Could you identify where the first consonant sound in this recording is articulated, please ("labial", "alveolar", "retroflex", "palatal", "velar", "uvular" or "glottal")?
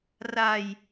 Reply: alveolar